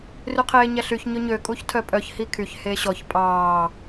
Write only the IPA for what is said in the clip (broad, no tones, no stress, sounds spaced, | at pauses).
r y qʰ eː ɲ æ ɬ y ç ɲ ɵ ɲ ø kʼ u ç tʰ œ pʼ œ ç h i kʰ y ç h eː ɕ ɔ ç pʼ ɑː